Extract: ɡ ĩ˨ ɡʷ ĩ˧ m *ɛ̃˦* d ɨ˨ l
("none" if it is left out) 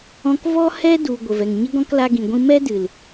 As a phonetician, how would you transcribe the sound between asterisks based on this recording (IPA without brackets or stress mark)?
ɛ˦